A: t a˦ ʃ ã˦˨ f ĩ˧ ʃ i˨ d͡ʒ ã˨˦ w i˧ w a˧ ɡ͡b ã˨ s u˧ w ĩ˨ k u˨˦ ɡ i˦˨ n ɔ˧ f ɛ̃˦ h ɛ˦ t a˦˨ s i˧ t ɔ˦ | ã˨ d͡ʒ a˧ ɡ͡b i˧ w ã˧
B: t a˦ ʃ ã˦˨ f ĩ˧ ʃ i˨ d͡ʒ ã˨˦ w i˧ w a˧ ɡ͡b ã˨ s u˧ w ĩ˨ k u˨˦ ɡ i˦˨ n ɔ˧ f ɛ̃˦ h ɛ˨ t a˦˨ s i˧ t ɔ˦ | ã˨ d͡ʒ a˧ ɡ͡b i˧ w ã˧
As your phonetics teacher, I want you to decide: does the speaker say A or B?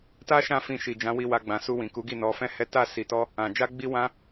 A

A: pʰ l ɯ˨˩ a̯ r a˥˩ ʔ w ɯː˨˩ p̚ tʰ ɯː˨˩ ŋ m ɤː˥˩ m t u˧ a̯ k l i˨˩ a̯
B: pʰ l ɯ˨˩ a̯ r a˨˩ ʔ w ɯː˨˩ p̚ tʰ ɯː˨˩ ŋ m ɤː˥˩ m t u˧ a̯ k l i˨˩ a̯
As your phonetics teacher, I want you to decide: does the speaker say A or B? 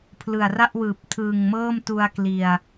A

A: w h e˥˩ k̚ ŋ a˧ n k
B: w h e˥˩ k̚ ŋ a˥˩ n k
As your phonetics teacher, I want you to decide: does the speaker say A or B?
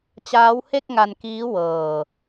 A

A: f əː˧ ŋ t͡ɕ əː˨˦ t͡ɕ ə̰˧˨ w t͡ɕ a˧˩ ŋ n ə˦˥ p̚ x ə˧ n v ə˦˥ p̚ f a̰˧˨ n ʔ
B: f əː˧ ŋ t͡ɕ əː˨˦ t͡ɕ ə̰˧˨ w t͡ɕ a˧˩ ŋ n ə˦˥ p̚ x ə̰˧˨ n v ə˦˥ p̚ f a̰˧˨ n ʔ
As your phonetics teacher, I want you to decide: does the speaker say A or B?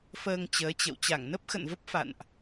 B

